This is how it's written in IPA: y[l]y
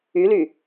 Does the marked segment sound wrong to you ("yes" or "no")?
no